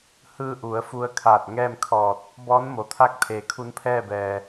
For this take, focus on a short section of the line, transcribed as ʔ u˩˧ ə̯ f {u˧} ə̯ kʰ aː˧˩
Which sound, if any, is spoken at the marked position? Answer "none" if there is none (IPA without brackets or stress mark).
u˧